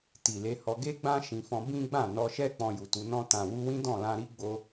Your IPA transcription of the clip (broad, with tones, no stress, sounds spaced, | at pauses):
t i˨ l e˧ h ɔ˧ ɡ e˦ ɡ͡b ã˦ ʃ ĩ˧ f ɔ̃˦ b ĩ˦ ɡ͡b ã˦˨ n ɔ˧ ʃ ɛ˦ k͡p ɔ̃˧ j u˨ t u˨˦ n ɔ̃˧ t ã˨ w u˧ w ĩ˦ d ɔ̃˦˨ l ã˧ ɾ i˦ ɡ͡b o˧